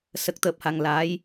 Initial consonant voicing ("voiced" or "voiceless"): voiceless